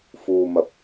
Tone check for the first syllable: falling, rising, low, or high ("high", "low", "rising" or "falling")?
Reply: low